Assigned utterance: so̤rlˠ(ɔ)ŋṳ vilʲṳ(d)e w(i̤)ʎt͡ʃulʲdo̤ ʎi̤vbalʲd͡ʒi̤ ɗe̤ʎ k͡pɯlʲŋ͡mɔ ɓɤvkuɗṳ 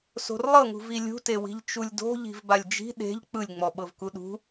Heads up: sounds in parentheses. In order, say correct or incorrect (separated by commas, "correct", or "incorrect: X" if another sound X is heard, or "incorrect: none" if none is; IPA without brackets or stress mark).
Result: incorrect: ɤ, incorrect: t, correct